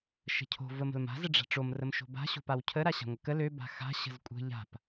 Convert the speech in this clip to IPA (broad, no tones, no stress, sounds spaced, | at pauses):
ʃ ə̤ cʰ o̤ v ə m ə̤ l m a̤ z ə ɖ͡ʐ a̤ ʈ͡ʂ o m r ə m ʃ o̤ b a̤ ɕ o̤ p a w cʰ ə ɾ a ɕ a̤ ŋʷ ə k ə l ø b a̤ x a̤ ɕ ə̤ z kʷʼ ə̤ ʎ a̤ p